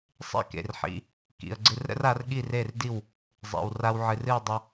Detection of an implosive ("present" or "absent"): present